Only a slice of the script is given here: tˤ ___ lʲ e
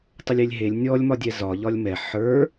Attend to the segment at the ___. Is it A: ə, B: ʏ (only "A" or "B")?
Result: A